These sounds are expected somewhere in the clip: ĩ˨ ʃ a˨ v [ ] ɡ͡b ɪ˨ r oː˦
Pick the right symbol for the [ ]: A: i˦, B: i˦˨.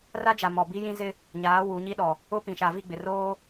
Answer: B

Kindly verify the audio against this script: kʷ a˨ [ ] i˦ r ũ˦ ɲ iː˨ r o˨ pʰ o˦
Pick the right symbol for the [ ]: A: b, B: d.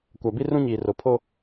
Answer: A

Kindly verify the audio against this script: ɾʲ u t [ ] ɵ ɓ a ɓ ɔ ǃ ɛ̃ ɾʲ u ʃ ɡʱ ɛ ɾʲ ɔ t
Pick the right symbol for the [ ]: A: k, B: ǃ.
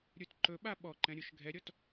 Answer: B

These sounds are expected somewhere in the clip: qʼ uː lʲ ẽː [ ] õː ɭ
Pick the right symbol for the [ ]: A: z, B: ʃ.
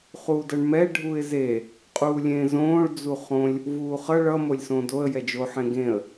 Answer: A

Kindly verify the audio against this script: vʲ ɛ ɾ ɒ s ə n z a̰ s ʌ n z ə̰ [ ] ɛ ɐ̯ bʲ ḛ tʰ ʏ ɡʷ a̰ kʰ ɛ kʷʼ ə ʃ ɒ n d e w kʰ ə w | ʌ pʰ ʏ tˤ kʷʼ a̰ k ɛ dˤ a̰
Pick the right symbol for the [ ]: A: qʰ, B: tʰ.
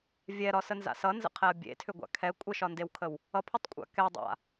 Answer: A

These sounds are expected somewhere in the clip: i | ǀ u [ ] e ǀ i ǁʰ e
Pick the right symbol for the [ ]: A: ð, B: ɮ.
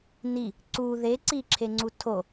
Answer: A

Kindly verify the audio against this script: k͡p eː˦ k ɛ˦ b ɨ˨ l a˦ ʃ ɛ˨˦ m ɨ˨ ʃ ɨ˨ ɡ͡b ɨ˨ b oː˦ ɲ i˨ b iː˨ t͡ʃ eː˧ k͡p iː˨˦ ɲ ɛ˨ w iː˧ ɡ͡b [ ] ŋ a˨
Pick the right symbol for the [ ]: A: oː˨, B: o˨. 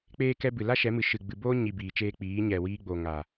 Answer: B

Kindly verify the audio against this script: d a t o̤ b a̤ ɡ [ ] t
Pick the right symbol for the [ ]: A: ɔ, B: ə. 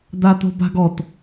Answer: A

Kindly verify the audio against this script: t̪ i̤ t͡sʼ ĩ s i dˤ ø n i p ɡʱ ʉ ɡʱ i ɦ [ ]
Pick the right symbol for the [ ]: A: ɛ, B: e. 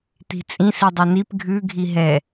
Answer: A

